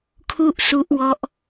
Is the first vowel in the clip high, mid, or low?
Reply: high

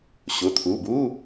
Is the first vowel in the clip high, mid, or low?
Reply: high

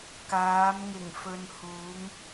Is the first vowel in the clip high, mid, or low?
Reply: low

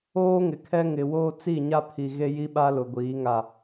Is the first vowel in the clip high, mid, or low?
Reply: mid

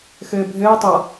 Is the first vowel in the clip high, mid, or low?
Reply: mid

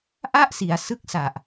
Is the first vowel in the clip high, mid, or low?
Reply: low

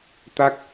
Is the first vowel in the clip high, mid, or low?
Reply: low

